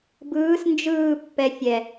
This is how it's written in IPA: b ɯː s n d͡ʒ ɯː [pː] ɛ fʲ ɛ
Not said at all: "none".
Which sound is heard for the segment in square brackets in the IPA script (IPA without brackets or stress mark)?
pː